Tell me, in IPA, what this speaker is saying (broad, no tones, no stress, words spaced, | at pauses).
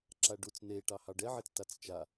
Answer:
ǁaɖut͡s neʈɑ hɑɖɛʕet͡stat͡s t͡ʃa